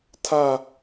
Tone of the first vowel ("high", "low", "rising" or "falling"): low